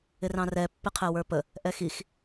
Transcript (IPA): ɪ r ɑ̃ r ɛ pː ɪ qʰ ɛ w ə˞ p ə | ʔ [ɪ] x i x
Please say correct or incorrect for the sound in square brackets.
incorrect